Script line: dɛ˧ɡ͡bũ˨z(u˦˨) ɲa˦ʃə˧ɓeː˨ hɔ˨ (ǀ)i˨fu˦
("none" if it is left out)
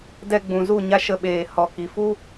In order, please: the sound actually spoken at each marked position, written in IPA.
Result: u˦˨, k

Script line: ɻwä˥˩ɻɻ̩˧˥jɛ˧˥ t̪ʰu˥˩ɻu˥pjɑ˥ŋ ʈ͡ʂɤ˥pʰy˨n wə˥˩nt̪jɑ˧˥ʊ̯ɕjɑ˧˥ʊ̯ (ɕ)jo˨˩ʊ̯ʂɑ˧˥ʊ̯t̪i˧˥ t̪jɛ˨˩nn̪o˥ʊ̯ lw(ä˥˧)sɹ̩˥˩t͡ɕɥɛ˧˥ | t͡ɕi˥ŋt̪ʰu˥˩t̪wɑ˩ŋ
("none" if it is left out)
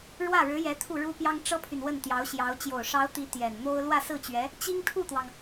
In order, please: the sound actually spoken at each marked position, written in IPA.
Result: t͡ɕ, ä˥˧

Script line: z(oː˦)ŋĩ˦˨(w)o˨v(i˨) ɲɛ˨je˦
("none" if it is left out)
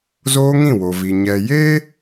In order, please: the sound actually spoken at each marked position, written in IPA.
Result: oː˦, w, i˨

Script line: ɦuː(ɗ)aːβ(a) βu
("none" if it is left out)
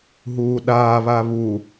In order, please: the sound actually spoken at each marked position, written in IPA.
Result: ɗ, a

